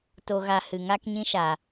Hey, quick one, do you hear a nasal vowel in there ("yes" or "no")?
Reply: yes